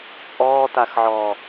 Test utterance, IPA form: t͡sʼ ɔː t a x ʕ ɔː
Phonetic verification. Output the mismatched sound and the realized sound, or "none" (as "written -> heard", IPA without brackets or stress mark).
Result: none